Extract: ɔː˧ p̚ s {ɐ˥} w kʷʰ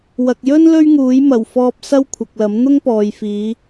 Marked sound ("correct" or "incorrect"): correct